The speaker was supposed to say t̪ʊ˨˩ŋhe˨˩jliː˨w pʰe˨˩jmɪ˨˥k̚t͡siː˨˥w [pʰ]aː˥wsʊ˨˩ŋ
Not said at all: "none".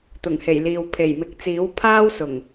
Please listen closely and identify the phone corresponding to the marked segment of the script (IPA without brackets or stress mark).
pʰ